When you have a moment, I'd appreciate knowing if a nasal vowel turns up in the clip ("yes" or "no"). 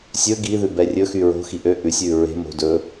no